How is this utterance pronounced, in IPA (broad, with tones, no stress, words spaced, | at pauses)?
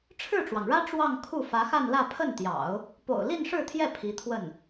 ʈ͡ʂʰɻ̩˥˩ʈ͡ʂwɑ˩ŋɻä˥ ʈ͡ʂwɑ˥˧ŋkʰu˥˩ fä˧˥xa˥˧nlä˥˧ pʰə˥˩nt̪jɑ̰˨˩˦ʊ̯ | po̰˨˩ʊ̯li˥˧nʂɻ̩˥˧t̪ʰjɛ˥˩ pʰi˧˥t̪ʰwə˥˩n